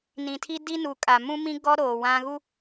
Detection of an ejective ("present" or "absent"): present